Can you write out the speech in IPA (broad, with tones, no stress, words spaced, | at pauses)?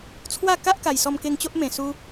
t͡sʰwa˥˧ ka˦ʔ ka˨˩jsɔ˧mke˧ŋ t͡ɕo˦ʔmẽ˨˩su˧